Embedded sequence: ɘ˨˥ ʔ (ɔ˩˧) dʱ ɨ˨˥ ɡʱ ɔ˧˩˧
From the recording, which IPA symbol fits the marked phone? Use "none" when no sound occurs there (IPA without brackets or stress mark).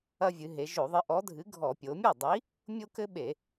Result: ɔ˨˥